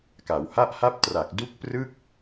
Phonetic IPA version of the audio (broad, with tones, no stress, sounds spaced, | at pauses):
k a˩˦ w h a˥˩ ʔ h a˥˩ p̚ t r a˨˩ k̚ d u˦˥ k̚ p r ɯ˥˩ k̚